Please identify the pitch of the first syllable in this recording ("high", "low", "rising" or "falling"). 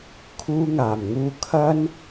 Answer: high